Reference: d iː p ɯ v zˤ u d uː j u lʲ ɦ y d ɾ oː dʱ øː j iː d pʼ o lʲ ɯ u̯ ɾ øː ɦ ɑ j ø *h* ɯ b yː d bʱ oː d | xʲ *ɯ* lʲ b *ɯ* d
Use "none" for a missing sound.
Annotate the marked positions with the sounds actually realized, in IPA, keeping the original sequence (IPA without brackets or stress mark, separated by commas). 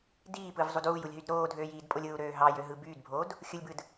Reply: ɦ, ɯ, ɯ